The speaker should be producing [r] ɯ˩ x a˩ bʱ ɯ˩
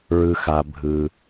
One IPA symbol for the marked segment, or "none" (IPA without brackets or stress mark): ɹ